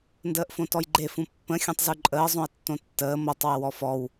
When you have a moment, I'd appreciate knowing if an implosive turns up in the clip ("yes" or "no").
no